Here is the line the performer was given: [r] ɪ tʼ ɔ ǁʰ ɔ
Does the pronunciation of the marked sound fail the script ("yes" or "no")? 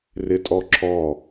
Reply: no